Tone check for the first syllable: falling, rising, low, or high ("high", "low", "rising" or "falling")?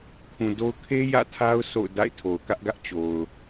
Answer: low